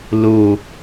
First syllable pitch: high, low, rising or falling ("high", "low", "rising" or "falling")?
low